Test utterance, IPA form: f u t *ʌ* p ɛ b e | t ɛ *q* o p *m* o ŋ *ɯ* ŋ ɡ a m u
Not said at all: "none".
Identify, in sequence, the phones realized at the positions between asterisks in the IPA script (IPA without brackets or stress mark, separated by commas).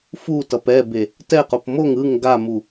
ʌ, q, m, ɯ